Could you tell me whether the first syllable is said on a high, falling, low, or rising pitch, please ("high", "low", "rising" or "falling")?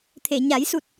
low